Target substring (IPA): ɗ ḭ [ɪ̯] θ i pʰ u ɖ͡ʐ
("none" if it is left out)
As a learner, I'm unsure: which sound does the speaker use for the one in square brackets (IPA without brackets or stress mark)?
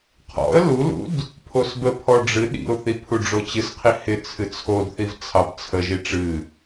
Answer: ʊ̯